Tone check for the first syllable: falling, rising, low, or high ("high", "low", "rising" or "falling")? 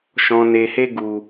low